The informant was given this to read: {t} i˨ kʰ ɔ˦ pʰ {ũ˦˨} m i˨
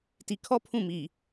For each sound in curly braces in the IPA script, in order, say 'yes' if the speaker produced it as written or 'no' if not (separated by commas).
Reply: yes, yes